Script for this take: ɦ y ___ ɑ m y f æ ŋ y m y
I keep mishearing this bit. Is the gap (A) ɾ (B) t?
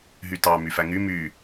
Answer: B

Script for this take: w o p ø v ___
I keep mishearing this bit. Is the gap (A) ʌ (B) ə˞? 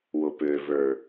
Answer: B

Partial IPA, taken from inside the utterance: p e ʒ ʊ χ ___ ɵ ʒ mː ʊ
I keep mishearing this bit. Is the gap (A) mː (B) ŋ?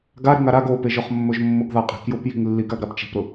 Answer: A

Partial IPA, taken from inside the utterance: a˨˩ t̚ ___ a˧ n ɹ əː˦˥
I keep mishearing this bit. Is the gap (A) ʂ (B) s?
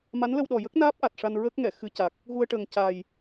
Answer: A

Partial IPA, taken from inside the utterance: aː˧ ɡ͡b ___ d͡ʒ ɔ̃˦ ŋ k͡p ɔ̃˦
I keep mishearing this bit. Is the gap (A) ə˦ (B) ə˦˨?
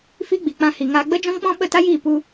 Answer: A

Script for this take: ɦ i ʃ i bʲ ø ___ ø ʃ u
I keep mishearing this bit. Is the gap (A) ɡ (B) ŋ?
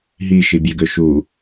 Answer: A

